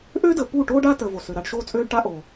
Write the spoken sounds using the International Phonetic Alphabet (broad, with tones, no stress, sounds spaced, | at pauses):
ʔ ø˦ d ə˨ p u˦˨ ʈ oː˦ ɖ a˦ t əː˨ v o˨ s ø˨ ɾ a˦ ɖ ʃ oː˦ t͡sʼ øː˦ ɖ ʈ a˦ ʔ o˨